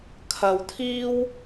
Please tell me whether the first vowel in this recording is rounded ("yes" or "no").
no